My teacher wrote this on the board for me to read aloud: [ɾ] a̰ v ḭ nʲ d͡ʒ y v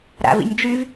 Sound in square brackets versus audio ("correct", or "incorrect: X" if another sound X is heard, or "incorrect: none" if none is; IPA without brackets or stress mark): correct